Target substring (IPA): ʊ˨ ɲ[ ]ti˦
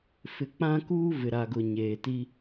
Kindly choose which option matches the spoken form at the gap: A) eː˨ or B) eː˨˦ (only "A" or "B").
A